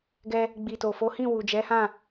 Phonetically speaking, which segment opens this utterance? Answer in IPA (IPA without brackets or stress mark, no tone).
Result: ɡ